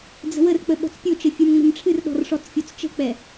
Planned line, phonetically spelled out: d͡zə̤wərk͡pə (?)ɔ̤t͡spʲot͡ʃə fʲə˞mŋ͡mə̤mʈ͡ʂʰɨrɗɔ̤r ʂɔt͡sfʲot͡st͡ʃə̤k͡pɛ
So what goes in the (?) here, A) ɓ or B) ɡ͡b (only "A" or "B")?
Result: A